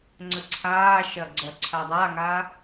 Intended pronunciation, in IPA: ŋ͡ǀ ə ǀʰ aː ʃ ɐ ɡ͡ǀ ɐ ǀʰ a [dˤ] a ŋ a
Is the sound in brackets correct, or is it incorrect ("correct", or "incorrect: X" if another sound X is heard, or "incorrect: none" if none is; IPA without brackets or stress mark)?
correct